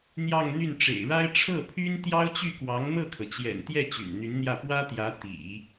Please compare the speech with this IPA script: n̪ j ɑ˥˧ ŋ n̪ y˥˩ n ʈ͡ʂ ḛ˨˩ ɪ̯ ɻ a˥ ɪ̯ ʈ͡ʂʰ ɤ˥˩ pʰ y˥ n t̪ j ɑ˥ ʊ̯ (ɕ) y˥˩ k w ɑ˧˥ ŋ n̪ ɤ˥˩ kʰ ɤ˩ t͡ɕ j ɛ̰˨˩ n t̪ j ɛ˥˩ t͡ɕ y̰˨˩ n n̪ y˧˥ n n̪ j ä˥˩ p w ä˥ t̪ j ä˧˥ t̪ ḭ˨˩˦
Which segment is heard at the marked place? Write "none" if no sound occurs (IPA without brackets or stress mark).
t͡ɕ